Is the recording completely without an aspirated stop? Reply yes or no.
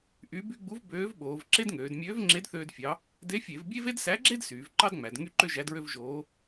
yes